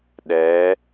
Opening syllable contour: rising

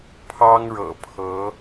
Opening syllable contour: high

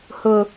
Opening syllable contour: high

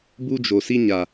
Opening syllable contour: high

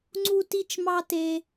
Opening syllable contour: high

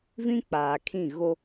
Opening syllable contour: high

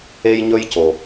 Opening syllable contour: high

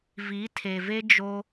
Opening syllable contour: rising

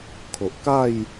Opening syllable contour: low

